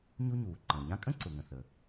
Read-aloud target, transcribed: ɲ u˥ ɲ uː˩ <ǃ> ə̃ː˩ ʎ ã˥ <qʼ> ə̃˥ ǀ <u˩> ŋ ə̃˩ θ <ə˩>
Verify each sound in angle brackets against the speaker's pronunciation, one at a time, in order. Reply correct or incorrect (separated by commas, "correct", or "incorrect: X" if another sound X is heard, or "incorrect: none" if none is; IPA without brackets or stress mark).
correct, incorrect: kʼ, incorrect: ʊ˩, correct